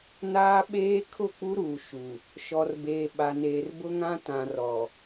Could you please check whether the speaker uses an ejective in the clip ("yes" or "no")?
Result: no